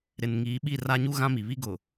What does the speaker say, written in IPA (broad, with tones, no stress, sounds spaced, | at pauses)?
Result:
ɾ ɪ˨ n ŋ iː˨˦ ɓ i˦˨ r a˦ ɲ u˦ ɣ ã˦ m i˨ β i˦ ɡ ʊ˨